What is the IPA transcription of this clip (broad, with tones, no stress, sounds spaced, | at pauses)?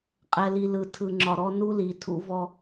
qʼ ɛ˨ l i˨ l ɯ˨ tʰ ɯ˨ ŋ͡ǁ ɒ˨ ɾ ɔ˦ n u˦ l i˨ tʰ ṵ˦ v ɔ˦